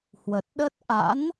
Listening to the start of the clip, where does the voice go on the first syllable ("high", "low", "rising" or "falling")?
low